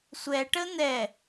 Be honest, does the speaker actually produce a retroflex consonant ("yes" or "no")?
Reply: yes